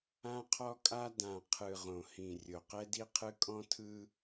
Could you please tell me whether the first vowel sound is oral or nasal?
nasal